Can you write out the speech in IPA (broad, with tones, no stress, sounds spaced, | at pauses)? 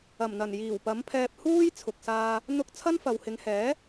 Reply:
ɐ˨˩ m n̪ ɐ˨˩ n j iː˨˩ w p ɐ˨˥ m pʰ ɛː˧ p̚ h uː˥ j t͡sʰ ʊ˧ k̚ s aː˥ | n̪ ʊ˥ k̚ t͡sʰ ɐ˥ n f ɐ˨ w h ɪ˨˧ ŋ h ɛː˨˥